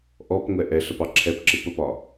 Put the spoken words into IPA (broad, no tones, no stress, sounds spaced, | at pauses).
ʔ ɔ p ŋʷ ɛ ʔ ɛ ɬ ə p ɑ ǁʰ ɛ p ǁ ɪ p ə p ɒ